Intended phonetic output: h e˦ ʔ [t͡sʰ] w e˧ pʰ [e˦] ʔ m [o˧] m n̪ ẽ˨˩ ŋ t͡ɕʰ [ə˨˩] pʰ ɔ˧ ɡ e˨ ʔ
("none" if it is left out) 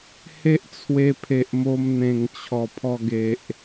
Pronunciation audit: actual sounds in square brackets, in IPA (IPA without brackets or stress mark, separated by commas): t͡sʰ, e˨, o˧, ɔ˨˩